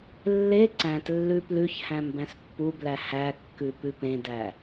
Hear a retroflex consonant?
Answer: no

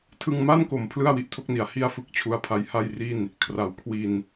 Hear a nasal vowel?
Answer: no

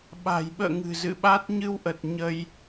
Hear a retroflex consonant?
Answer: no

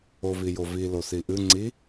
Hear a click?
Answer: yes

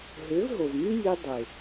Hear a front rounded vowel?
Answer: yes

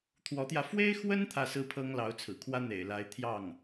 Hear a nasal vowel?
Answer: no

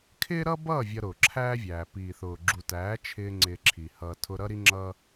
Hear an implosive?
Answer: no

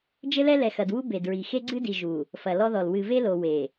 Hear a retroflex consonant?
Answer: no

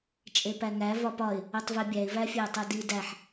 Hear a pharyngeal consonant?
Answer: yes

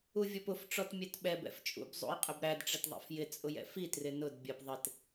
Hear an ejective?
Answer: yes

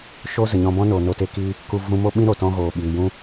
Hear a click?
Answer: no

